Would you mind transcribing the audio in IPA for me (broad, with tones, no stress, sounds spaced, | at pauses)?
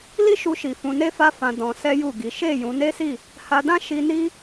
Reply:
l i˦ ʃ u˧ ʃ i˨ f ũ˧ n e˦ f a˦ f ã˧ d ɔ̃˧ s ɛ˦ j u˦˨ ɡ i˨˦ ʃ e˦˨ j ũ˨˦ n e˦ s i˦˨ | h a˧ d ã˦ ʃ i˧ n i˦